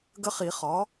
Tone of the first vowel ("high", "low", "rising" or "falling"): high